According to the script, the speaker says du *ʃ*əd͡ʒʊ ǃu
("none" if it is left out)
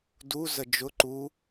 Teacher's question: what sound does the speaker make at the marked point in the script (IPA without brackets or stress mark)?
z